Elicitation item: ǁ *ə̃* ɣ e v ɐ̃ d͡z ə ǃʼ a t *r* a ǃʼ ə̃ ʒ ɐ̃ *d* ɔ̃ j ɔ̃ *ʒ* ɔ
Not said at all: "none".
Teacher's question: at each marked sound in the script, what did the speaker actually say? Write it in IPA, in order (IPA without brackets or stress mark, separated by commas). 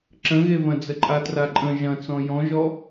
ə̃, r, t͡s, ʒ